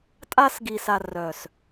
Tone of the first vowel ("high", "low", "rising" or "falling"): high